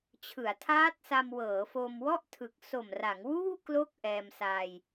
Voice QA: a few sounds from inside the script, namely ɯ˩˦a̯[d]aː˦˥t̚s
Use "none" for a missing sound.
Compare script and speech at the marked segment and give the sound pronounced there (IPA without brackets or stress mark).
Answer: tʰ